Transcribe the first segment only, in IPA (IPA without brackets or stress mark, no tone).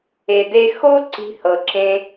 e